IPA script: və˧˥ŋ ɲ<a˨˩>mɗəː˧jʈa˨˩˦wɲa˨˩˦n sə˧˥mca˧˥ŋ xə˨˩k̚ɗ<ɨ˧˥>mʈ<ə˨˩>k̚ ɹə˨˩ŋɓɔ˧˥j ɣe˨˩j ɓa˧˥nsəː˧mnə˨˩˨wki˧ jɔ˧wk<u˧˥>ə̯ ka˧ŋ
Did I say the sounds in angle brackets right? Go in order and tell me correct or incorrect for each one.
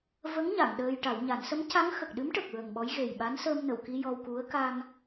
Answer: incorrect: a˨˩˨, correct, correct, correct

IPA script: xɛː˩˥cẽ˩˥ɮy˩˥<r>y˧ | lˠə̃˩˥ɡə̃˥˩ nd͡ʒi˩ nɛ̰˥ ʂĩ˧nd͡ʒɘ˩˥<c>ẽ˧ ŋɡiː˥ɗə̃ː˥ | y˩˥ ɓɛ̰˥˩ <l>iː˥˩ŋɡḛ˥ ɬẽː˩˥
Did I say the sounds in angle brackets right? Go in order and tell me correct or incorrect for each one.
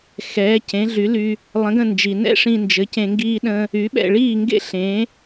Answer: incorrect: l, correct, incorrect: ɭ

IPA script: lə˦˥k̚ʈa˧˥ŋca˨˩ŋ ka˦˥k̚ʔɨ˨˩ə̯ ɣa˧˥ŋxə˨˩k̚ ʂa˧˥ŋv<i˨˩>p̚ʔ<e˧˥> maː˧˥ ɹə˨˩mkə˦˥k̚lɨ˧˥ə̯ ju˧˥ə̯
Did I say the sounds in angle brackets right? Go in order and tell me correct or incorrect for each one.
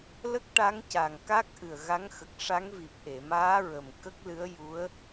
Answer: correct, incorrect: e˨˩˨

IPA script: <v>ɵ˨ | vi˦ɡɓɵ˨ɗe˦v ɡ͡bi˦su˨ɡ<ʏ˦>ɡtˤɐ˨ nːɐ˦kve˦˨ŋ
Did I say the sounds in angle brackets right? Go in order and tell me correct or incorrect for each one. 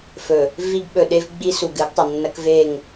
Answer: incorrect: f, incorrect: ɨ˦

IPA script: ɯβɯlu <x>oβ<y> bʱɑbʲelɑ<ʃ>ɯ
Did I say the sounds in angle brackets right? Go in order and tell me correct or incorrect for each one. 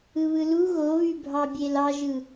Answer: incorrect: ɣ, correct, incorrect: ʒ

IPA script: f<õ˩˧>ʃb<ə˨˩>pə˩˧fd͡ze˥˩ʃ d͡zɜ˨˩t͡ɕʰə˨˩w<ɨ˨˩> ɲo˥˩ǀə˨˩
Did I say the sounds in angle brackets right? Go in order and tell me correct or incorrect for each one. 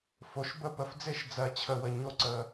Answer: incorrect: o˩˧, incorrect: ə˥˩, incorrect: ə˨˩

